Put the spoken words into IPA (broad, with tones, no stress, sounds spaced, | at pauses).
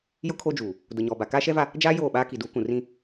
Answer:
j ʊ˦ kʰ o˦ d͡ʒ uː˨ | d ʊ˨ ɲ ɔ˨ b a˨ k aː˦ ʃ ɛ˦ v a˦ | d͡ʒ aː˦ j oː˦˨ ɓ aː˦ k i˨ d uː˨˦ k ũ˨ r ĩ˦